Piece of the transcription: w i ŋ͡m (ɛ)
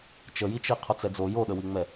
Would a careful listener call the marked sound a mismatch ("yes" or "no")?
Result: no